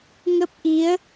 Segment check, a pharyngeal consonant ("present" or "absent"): absent